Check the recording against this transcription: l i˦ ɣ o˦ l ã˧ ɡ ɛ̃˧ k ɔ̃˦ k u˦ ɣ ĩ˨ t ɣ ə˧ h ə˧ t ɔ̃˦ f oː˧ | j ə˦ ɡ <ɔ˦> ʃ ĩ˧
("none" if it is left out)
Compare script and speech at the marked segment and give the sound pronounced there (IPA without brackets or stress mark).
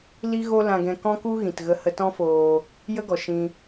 ɔ˨